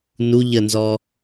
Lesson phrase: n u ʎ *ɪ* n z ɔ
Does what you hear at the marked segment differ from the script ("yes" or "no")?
yes